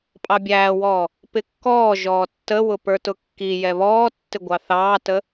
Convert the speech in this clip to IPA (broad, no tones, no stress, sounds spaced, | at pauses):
pʼ ɑ bʲ æː w ɔː | p ɪ kː ɔː ʒ ɔː tː ə w ʊ p ə˞ t ʊ kː i j ɛ β ɔː tː ɪ ɡʷ ɑ θ ɑː t ə